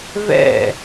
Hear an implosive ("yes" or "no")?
no